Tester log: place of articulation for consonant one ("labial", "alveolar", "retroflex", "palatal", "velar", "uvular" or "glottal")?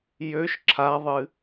palatal